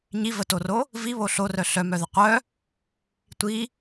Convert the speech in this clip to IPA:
ɲ i v ə t o r o | v i β o ɬ o r œ ɬ œ m œ ð ə qʷ œ | tʷ i

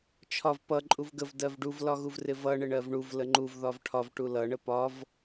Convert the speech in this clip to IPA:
t͡ʃʰ ɒ v p ʌ ǃʼ u v ɡ ə v d ɜ v ɖ u v l ɒ ɣ u v r ɪ v ʌ ɳ ɪ ɳ ɜ v ɳ u v l ə ŋ͡ǃ u v ð ɒ v ʈʰ ɒ v ʈ u l ʌ ɳ ə p ɒ v

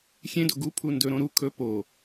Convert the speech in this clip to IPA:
xʲ ẽ d o ɡ u pʰ u n d ɵ ɾ õ ɾ u kʰ ɵ p o

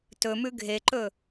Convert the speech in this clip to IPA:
t ɵ m ʉ ɡʱ e ǃ ɵ

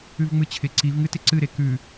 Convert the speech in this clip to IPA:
ʉ v ŋ͡m ɨ t͡ɕʰ ɪ ǀ i v ŋ ɨ t ɪ ǀ ɨ ɾ e k ʉ

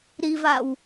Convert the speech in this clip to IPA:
ɾ i v a w

